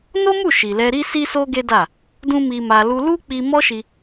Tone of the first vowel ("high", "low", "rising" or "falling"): high